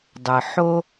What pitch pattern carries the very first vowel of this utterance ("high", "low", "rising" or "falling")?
low